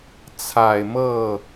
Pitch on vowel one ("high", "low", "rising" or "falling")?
low